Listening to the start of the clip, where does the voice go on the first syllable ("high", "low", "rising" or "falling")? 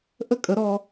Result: high